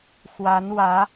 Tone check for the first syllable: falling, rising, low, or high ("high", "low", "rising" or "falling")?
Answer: rising